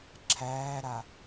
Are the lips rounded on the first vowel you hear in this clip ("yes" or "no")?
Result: no